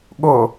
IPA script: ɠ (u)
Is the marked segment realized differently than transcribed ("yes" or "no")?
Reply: yes